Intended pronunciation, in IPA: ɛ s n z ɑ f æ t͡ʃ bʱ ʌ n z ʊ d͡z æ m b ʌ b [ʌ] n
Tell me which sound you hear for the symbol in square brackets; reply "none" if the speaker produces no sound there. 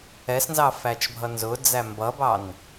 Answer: ɑ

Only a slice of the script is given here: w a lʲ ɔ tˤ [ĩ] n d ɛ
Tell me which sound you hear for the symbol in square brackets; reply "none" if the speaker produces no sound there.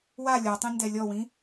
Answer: ĩ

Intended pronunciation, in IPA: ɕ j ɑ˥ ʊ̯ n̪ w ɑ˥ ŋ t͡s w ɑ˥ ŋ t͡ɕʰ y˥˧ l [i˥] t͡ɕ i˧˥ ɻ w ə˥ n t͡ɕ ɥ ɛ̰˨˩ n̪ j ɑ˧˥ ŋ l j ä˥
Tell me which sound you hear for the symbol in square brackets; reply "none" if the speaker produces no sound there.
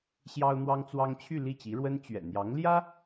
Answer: i˥˩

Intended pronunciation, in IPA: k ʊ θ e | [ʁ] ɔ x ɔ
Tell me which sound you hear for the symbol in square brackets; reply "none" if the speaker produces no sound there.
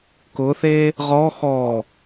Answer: ʁ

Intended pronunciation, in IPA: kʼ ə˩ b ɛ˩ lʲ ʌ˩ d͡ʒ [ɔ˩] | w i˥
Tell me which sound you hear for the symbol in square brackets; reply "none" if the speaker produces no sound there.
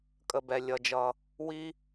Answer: ʌ˩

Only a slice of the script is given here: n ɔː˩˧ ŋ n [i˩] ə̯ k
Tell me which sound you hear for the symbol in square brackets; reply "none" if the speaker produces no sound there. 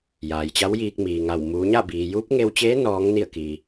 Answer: i˧˩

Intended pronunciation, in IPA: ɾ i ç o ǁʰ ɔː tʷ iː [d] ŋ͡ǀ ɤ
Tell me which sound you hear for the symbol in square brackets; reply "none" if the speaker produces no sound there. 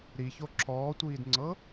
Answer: d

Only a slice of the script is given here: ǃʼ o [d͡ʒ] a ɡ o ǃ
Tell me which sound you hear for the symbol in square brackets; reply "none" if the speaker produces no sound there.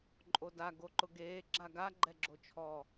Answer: d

